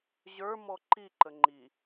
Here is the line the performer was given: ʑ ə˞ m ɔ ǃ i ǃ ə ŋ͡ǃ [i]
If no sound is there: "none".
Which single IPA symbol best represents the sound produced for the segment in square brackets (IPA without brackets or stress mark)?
i